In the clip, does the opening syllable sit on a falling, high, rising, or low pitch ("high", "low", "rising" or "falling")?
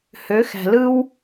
rising